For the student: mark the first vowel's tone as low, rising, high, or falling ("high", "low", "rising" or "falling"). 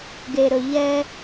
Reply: low